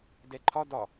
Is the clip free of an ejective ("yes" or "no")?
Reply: yes